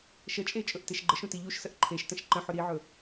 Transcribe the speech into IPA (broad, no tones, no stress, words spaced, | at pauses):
ʃət͡ʃʼe t͡ʃʼɵʔteʃɡ͡ǃəʃũ tiʎuʃsəʔ ǃʰeʃtə̃ʃ ǃə̃ħɵ ɾiʕɵ